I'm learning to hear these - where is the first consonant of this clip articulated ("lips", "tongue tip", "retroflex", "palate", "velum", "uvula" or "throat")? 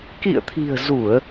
velum